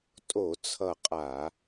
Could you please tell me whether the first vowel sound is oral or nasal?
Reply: oral